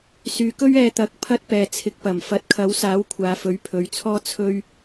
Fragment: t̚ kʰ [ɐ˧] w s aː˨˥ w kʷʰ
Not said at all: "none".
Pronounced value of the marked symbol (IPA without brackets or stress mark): ɐ˨˥